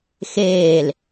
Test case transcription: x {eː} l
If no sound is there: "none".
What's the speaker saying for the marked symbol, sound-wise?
eː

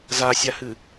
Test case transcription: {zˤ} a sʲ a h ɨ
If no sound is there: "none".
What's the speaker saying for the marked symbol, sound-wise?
z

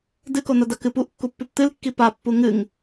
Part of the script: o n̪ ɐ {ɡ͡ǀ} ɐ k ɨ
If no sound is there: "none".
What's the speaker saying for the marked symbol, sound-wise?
d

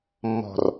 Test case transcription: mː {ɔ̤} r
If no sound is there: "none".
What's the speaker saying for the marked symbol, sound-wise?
ɔ̤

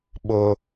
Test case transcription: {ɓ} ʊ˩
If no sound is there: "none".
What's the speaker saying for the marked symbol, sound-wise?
ɓ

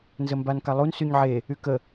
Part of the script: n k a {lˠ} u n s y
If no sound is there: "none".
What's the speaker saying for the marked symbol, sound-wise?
lˠ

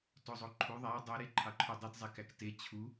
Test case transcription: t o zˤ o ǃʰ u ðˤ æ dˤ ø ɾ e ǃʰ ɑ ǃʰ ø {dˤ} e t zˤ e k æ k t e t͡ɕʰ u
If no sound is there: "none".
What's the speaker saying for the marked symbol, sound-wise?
dˤ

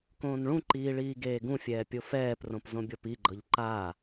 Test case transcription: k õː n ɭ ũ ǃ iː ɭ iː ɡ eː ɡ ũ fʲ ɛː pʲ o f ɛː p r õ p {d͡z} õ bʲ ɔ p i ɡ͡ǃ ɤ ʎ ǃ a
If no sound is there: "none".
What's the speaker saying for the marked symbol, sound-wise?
z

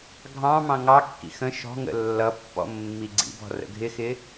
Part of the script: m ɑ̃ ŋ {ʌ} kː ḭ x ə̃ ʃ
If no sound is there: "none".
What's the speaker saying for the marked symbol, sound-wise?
ɑ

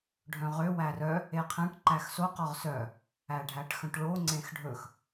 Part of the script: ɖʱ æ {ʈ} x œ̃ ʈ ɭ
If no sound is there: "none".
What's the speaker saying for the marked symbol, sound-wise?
ʈ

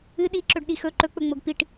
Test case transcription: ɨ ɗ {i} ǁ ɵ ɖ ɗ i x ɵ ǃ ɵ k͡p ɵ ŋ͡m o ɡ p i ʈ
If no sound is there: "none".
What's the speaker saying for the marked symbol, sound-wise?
i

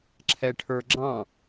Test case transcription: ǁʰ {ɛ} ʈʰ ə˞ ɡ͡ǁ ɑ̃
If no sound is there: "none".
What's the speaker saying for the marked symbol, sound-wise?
ɛ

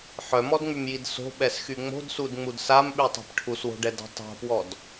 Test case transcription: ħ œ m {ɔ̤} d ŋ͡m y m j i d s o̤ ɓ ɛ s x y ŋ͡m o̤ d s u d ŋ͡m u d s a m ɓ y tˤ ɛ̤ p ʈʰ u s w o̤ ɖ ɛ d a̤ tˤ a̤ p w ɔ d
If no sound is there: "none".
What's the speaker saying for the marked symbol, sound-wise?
ɔ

